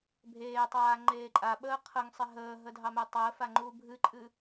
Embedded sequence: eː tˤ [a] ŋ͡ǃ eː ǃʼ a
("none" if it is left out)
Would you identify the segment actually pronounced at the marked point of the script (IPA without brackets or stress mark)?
aː